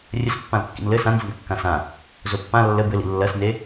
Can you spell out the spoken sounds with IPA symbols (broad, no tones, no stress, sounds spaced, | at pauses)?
rʲ ə s pː ã l kː ḭ n l ɘ s ã n zʲ ɘ n kː ã s ã | z o pː ã lː ə b ɘ l ḭ lː ɐ s n e